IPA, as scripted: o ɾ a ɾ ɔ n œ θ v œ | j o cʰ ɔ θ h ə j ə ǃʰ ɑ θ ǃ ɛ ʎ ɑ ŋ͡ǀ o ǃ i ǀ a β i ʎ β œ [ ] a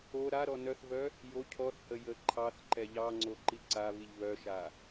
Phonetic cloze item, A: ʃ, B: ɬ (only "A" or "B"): A